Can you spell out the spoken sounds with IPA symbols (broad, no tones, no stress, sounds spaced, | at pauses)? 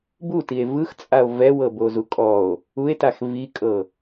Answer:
b u t i e̯ v ɯ x t͡sʼ a o̯ v ɛ w ɤ b o z u kʼ ɔ o̯ | u e̯ t a x v i kʼ ɤ